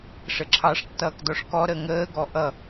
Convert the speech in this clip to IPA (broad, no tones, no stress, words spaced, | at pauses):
ʂəǁʰɑʂ tːʌːkdɔʂkɔ ɾəŋəː ɡɔʔʌ